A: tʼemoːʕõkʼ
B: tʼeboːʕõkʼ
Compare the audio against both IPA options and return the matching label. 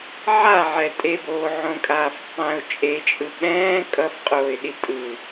B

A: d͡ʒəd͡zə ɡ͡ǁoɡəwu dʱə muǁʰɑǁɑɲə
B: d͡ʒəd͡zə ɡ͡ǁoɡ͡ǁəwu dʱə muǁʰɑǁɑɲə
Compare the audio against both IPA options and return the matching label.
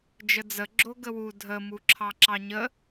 A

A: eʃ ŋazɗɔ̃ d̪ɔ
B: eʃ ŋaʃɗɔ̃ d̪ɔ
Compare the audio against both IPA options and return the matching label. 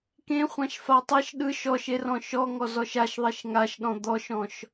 B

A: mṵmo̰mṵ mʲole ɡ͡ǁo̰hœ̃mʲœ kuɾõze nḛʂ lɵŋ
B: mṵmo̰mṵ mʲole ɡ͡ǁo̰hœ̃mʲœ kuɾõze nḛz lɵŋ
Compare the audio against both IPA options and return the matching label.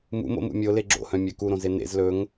B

